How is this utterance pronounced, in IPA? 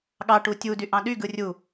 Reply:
ɠɑ ʈutʲudy ʔɑ̃ɗyɡɯ rʲu

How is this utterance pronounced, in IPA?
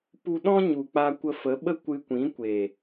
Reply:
pu˧ɗɔ̃˦ɲu˨ k͡pa˧kʷə˧fə˨˦ɓə˦ kʷɨ˧kʷĩ˨˦ kʷe˨

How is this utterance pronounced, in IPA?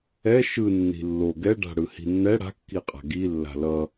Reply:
ɛ ʃɯ nːi̤lːo ɡɛɖa̤ ɽɯhi̤nːɛ ɽa̤kːiqʼa̤ ɡi lːa̤lʌ

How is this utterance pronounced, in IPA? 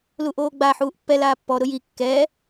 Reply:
luʔoːɡ͡ba ħuːʔpːɛl aːpːɔ ɾʊji kːɛ

